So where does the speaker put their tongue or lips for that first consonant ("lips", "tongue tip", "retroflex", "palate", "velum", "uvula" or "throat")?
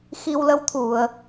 velum